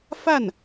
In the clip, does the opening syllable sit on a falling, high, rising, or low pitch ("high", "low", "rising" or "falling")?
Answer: falling